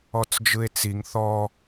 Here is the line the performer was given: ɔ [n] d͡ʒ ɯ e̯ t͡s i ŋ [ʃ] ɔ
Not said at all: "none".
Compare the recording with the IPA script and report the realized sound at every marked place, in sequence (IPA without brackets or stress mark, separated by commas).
t͡s, θ